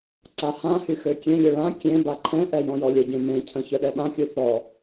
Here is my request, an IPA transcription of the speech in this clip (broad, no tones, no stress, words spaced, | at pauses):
ǀahãhy xøkʲẽlʲø ɭã kʲẽ baǃʰɛ̃ʔɛ jɔ̃jɔlʲəɟẽ mẽcʰə̃ çœɗɛɓãkʲu θɔ